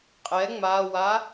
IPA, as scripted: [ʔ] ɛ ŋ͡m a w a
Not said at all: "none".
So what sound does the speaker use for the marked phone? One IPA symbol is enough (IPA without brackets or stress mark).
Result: qʼ